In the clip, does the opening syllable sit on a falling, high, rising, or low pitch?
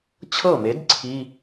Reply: falling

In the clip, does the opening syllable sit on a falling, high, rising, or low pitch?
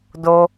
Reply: high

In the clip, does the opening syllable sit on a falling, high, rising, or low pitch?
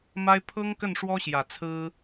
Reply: high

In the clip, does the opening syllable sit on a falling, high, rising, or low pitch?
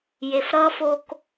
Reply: low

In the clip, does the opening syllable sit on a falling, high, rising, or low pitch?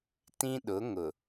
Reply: high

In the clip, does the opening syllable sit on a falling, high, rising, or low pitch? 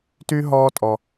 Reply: high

